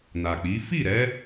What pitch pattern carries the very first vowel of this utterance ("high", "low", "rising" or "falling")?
low